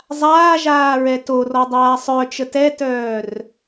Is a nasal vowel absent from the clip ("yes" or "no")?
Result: yes